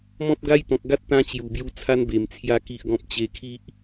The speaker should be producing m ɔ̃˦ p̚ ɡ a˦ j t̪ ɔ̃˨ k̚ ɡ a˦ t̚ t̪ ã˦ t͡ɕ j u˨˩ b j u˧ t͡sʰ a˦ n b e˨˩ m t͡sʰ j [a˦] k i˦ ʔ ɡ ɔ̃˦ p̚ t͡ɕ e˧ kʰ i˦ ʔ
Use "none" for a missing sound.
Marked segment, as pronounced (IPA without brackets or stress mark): a˦